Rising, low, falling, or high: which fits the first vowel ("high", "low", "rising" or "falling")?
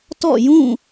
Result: falling